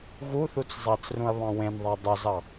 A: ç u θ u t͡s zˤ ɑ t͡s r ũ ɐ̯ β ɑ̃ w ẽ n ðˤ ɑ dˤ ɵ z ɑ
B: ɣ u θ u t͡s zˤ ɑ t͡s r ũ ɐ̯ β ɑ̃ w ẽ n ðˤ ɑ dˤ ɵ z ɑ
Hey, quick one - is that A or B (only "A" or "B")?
B